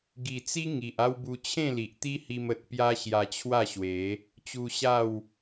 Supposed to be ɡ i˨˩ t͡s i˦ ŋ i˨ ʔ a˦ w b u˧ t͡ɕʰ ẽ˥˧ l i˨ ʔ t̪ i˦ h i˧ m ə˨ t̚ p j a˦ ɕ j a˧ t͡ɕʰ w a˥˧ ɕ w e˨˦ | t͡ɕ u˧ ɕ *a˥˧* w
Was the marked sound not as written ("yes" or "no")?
no